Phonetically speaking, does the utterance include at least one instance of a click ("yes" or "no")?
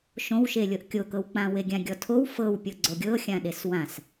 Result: yes